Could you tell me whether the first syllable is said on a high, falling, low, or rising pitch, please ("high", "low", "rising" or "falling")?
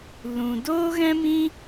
low